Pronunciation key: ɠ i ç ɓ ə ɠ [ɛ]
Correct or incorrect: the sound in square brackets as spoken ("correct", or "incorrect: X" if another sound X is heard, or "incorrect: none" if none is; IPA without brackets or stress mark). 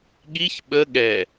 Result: correct